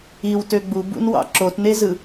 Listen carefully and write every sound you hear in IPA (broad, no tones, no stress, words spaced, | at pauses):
iwtø ɡ͡bubṵnwɑ̰ ǁotnezɯ